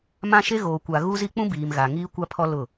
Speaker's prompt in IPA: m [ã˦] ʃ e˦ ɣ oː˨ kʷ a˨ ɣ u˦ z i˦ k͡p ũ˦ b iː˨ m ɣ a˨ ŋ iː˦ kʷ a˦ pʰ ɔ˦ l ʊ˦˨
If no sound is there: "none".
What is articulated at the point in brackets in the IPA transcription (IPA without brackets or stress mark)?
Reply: ã˦